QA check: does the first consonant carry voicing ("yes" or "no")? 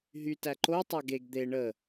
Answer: yes